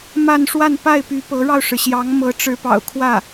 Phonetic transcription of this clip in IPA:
ma˥˧nʂwa˥˧npa˥˩ɪ̯py˧˥ pɤ˧˥ɻɑ˧ʊ̯ʂɻ̩˩ɕjɑ˧˥ŋ mɤ˧˥ʈ͡ʂɻ̩˧˥pɑ̰˨˩ʊ̯kʰwä˥˩

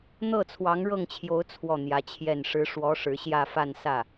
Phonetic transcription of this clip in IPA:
n̪ɤ˥˩t͡sʰwɑ˧˥ŋɻɤ˥˩ŋt͡ɕʰjo˧˥ʊ̯ t͡sʰwɔ˥˩n̪jä˧˥t͡ɕʰjɛ˥˩n ʂɻ̩˧˥ ʂwɔ˧˥ ʂɻ̩˧˥ɕjä˥˧fa˥˧n sä˥˩

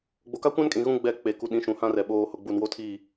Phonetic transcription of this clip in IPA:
ɡ͡bo˨ka˦kʷã˦nkʼĩ˨ ɣũ˦ ɡ͡bɛ˦˨ k͡pe˨ku˨ɗĩ˨˦ ʃũ˨hã˦rɛ˨ ɓoː˨hʊ˨ ɡ͡bu˨nwo˦tʰi˦˨

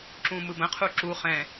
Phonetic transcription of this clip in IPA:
ǁũmɯbə̃ qʰuǁu χɛ̃

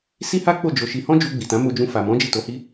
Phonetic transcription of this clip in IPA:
si˦ha˦k͡po˦˨ d͡ʒo˧ʃi˧ hɔ̃˦d͡ʒu˧ɡ͡bi˨ tã˨˦mo˧d͡ʒũ˧fa˨ mɔ̃˨˦ d͡ʒi˦˨to˧hi˦

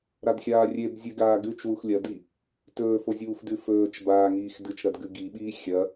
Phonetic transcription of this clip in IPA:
ɾadxʲaːrʲebzʲʉ ɡaːɡʉt͡ʃ wuxlʲɐdi | tɵːfozʲuːfdʉ fɵːt͡ʃ baːŋiːxdɨt͡ʃɾɐd ɡʉɡiɓiː xʲɐ

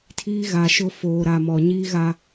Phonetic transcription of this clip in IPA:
tʰiː˦ɣa˨ʃʊ˦ foː˨ɾa˨mɔ˨ ɲiː˦ɣa˦

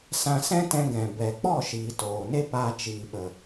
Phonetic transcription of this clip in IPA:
sã˧sɛ̃˦ tɛ̃˧ɡɛ̃˨ bɛ˨k͡pɔ˦˨ʃiː˨ toː˨ne˦pa˧ t͡ʃiː˨ɓə˨

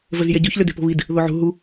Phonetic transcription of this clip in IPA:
vəz jɛɟoç løde̤po̤βid | ðoʕṳ ɦu

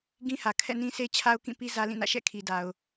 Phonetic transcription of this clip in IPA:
ɡĩ˦hä˨ kʰɛ̰˦˨nĩ˦sʰe˦ t͡ɕʰa˦ʊ̯kĩ˦˨pi˦ zä˦lĩ˦˨nä̰˦˨ ʃɛ̰˦˨kʰi˨ da˨ʊ̯

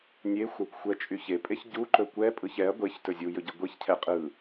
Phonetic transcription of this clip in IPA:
nʲexʷakʷxʷɛt͡ʃʼy çepʼeç ɟuǃɵ kʷɛpʼɯç ɛɐ̯ ɡʷeçtɵ zʲujɵɟɯ ɡʷiçcʰɛ qʼɯ

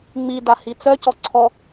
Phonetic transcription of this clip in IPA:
ŋ͡mida hit͡sœ cɔǀʰɔ

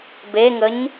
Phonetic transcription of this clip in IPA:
beŋəɲ

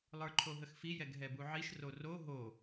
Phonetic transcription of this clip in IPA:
lˠə˞ǃʰoɦəxfi jɛɡɦɛbuʕiʃ roro ɦo

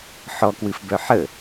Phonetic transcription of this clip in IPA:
ħɔkwɨfbœ ħə

